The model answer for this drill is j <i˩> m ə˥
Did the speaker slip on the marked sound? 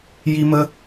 yes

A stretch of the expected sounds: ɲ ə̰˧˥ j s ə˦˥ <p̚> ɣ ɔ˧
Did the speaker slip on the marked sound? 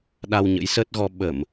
yes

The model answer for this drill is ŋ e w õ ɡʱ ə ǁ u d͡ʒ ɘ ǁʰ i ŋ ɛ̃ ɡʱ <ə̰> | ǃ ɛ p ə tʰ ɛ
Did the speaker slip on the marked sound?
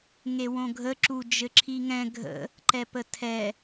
no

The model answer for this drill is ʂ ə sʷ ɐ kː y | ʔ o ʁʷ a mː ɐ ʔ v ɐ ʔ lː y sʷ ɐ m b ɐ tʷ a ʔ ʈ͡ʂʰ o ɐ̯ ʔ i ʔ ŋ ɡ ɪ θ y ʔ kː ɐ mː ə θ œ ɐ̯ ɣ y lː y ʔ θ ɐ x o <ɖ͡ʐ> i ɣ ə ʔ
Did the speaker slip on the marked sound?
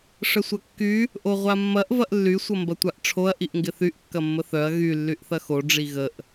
no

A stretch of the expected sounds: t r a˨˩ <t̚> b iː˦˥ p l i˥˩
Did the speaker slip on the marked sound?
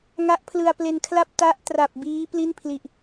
yes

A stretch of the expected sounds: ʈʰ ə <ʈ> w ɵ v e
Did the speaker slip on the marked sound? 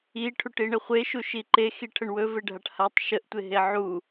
yes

